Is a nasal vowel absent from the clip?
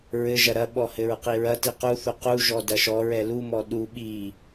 yes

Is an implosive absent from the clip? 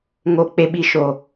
no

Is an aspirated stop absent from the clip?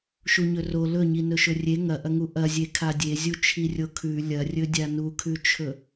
no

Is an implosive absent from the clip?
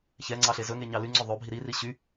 yes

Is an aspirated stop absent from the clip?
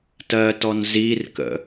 yes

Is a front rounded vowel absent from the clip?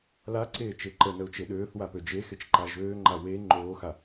no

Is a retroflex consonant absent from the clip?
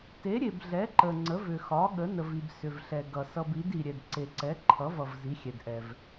yes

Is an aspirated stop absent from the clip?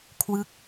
no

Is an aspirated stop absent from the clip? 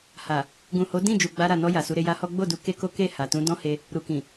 yes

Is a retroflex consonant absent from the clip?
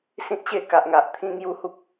yes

